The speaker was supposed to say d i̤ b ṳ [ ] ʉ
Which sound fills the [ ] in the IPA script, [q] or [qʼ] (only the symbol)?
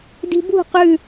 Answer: q